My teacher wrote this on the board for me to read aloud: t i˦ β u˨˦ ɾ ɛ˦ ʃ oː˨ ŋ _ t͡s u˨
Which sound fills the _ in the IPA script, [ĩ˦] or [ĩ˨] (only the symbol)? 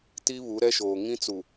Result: ĩ˦